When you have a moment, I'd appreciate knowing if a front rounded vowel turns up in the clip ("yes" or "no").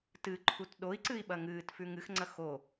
no